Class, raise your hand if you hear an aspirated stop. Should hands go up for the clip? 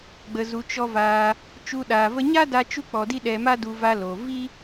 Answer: no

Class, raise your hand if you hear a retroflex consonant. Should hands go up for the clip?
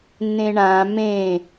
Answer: yes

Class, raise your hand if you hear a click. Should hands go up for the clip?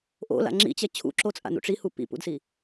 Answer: yes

